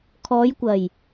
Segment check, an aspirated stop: present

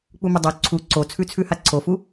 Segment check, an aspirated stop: present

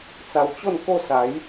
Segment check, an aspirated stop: absent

